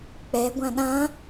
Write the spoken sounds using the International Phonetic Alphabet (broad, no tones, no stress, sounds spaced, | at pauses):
k͡p ɛ ɡʷ ã ɗ ã